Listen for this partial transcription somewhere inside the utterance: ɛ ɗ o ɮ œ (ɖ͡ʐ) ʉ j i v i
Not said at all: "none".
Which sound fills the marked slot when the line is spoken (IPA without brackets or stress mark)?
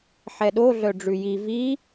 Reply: ɖ͡ʐ